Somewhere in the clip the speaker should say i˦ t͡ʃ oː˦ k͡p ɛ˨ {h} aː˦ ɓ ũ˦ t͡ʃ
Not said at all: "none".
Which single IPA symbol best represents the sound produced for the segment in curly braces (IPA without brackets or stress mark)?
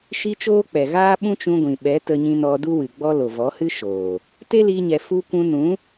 ɣ